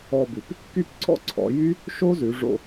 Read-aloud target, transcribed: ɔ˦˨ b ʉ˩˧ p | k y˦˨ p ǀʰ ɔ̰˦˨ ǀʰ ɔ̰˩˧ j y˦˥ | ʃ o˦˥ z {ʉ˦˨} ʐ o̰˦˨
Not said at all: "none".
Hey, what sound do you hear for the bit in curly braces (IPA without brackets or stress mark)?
ʉ˩˧